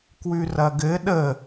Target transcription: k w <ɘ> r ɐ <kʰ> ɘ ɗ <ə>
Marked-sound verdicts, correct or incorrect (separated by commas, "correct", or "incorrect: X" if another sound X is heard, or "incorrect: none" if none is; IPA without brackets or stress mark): incorrect: ʉ, incorrect: ɡ, correct